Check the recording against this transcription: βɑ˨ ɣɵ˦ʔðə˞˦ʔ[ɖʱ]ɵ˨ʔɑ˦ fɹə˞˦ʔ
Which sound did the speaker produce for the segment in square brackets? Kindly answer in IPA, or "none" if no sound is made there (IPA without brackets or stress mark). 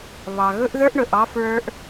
ɳ